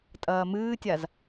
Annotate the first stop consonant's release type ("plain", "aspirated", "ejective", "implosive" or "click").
ejective